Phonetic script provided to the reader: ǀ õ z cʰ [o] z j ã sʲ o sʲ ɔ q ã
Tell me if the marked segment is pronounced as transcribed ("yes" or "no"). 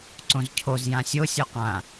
yes